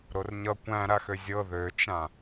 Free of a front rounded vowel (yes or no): no